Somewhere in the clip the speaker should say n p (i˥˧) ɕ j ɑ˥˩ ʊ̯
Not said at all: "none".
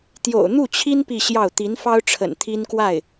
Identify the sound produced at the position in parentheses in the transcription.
i˥˧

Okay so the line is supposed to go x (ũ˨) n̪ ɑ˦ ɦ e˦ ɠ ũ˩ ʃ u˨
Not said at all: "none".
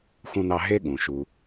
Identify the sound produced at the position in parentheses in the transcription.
ũ˦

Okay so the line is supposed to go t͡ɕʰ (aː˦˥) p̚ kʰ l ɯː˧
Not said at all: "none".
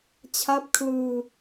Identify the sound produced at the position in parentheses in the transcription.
a˦˥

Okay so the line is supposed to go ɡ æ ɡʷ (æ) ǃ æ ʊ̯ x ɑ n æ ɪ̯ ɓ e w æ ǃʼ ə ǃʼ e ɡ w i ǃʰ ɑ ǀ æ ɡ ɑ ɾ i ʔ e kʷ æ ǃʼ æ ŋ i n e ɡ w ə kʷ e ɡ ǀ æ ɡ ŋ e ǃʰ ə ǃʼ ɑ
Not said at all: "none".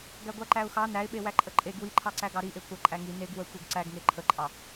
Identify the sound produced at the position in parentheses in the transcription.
æ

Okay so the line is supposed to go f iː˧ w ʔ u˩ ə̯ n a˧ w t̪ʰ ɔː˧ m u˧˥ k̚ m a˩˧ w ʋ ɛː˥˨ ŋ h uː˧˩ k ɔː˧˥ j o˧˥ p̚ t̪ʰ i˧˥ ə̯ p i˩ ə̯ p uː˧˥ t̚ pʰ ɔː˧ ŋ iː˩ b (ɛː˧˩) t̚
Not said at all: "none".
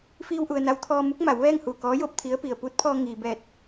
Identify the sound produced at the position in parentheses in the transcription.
ɛː˧˩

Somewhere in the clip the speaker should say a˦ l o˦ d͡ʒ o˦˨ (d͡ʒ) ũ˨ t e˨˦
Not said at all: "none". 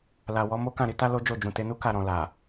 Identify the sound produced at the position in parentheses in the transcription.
d͡ʒ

